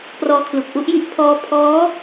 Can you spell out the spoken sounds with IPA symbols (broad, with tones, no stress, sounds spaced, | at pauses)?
p r ɔː˦˥ kʰ l u˨˩ k̚ ʔ u˦˥ ʔ j i˥˩ ʔ pʰ ɔː˦˥ pʰ ɔː˦˥